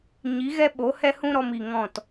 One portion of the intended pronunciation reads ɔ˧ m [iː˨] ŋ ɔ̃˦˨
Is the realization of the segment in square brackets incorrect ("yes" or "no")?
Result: yes